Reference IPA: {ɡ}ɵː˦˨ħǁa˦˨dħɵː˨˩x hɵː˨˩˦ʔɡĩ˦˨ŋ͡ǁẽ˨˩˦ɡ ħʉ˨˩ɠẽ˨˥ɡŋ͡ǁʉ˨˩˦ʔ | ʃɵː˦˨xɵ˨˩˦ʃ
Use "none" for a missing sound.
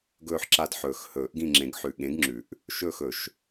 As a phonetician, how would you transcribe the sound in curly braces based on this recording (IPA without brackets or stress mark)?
ɡ